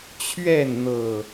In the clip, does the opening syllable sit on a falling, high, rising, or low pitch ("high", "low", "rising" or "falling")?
falling